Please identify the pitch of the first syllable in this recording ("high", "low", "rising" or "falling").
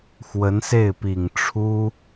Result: rising